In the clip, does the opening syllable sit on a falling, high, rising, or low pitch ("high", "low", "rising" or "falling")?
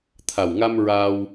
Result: low